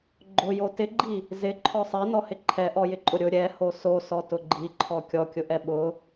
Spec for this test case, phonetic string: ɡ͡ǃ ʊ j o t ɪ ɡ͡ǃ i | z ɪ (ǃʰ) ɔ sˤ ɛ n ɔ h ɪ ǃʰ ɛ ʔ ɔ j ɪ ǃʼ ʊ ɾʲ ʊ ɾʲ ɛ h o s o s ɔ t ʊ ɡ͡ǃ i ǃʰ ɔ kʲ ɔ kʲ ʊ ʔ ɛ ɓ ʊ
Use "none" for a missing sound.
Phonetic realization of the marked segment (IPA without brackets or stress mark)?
ǃʰ